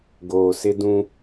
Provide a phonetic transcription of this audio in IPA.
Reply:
ɡ oː˨ s ɪ˦ d ũ˦

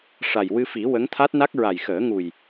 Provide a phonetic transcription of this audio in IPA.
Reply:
ʂ a˨˩ j w ɨ˧ f i˨˩˦ w ə˧˥ ŋ t̪ʰ a˦˥ t̚ n a˦˥ k̚ ɹ a˨˩ j x əː˨˩˦ ŋ u˨˩ j

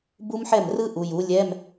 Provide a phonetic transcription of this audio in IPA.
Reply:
b u˦˥ m ħ ɛ˥˩ m r ɯ˦˥ ʔ u˩˧ j u˩˥ lʲ ɛ˧˥˧ m

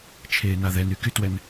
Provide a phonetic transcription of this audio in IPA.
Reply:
t͡ʃʰ eː n a ð ɛ n y k y t w ɛ n

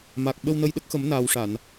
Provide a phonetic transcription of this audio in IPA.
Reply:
m a˨˩ k̚ ɓ ə˧ w n ə˧ j ɗ ə˦˥ k̚ x ə˨˩˦ m n aː˨˩ w ʂ a˨˩˨ n

